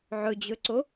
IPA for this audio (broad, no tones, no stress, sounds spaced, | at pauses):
ʕ ɵ d͡ʑ ɵ ǀ o